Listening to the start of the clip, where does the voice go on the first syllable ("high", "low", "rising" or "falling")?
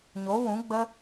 rising